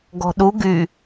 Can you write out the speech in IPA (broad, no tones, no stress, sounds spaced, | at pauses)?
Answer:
ɡ ɔ̤ ɗ u ɡ y